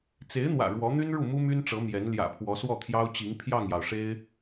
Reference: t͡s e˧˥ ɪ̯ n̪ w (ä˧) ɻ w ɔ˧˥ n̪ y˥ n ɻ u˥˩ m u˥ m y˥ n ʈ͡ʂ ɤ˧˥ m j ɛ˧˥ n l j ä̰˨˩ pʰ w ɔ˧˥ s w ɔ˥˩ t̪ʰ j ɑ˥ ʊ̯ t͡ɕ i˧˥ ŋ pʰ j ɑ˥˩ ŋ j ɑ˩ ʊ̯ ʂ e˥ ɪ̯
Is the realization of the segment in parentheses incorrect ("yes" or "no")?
yes